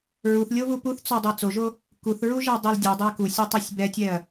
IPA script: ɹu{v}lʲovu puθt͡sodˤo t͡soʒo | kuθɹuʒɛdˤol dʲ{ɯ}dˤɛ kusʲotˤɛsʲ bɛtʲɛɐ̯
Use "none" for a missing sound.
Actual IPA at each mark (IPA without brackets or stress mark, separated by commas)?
θ, u